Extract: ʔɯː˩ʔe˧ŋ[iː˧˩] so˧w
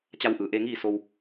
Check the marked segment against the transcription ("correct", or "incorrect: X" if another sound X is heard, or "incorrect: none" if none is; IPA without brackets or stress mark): incorrect: iː˥˨